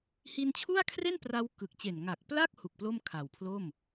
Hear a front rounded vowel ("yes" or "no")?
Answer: no